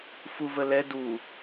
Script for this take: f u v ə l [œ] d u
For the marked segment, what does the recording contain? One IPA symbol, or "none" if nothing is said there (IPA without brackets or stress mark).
ɛ